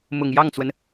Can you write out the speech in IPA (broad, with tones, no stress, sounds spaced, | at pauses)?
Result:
m ʊ˨˩ ŋ j ɑ˥˩ ŋ t͡s w ə˩ n